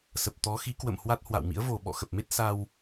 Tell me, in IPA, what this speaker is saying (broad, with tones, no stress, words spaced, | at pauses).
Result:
sə˨˩p̚t̪ɔ˨˦ xi˨˦ kwə̰˧˨m hwa˦˥t̚hwa̰˧˨wmḭ˧˥ə̯ vo˨˩ ɓɔ̰˧˨ xə˨˩p̚me˦˥t̚ sa˧w